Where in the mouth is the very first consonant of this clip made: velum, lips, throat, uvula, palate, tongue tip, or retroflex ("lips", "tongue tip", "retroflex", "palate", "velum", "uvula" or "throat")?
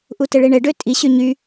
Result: throat